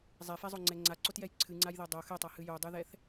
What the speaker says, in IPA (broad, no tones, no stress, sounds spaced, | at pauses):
zˤ ɛ f ɛ zˤ o ŋ͡ǀ ɛ ŋ͡ǀ a ǀ o t j ɛ j ǀʰ ɨ ŋ͡ǀ a j ð ɛ dˤ o x ɛ tˤ a h ɨ j o dˤ ɨ ð ɛ θ